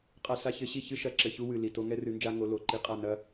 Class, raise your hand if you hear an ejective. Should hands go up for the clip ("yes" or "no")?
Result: yes